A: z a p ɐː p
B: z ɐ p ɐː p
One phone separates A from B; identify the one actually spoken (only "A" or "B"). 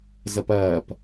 B